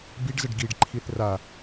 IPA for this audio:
biɖzəɖ ɡiɖǃʰiθ ra

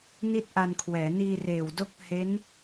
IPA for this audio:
ni˥˩t̚ʔa˧nkʰwɛː˩˦ niː˧reː˨˩wdo˦˥k̚ he˦˥n

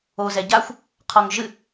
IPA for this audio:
o zɛɟaxʷ | qʰɔŋʒɨ

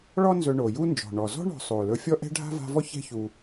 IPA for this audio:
ɭɔ˦nzɵ˨ ɳo˩ju˥nd͡ʒɔ̤˩ɳɔ˩ zɔ̤˥ɳɔ̤˨ sˤo˩ lɵ˨fʲɔ˦ʔɛ̤˦ ɖʱa̤˥va̤˦vɔ˥ çɛ̤˦çu˨

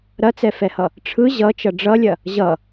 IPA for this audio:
ɾɐt͡sɛfɛhʌ | ʈ͡ʂʰɯ ʑʌt͡ʃʌ ɖ͡ʐʌlʲɐ | ʑʌ

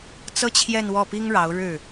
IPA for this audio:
t͡sɤ˥t͡ɕʰjɛ˥˧nwɔ˥˩pi˥ŋ ɻɑ˧˥ʊ̯ɻɻ̩˥˩

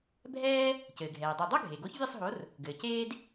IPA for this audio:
bʱɛː˥ | cɘː˩ɡʱɛː˩dˤo˧˩ dˤo˥ ɡʱe˩ɡo˨˥ç vʲɛ˥˧sˤɦo˨˥r | ɡɘː˩ceː˥d

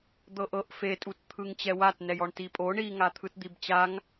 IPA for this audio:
d̪ɤʔɤʔ fetʼut t̪ʰɯŋt͡ɕɛwat nɛjɔɳtipʼo ɳiŋa t̪ʰɯtd̪ibt͡ɕaŋ

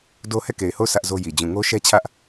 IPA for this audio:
do˦ hɛ˦˨ke˨ɪ̯ho˦˨ʊ̯ sä˦ʔzo˦ji˨ d͡ʑũ˨ŋo˦ʃɛ˦ t͡ɕʰä˦ʔ

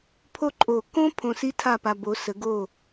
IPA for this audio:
pʰo˥ǃʼo˧˩ kõ˥ pʰõ˧si˥ tʰa˥˧pa˧ bo˩˧sə˩˧ɡo˧˩

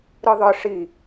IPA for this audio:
ɾɯðˤɯ ʂi

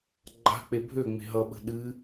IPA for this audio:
ɡ͡ǃa̤k͡pe bʱøŋ͡me̤ ɦʌɓə̤ ɗɨ

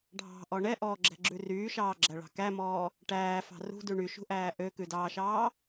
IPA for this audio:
ɖʱɑ̤ʔɔ ɳɛʔɔːɡ͡ǁɛ̤ɡ͡ǁʉ ryːʃɑːɡ͡ǁæɭɑ̤ kæmɔː | ʈæːfɑ̤ rṳdʉ ɳyʃṳʔæː ʔøkʉdɑːʃɑː

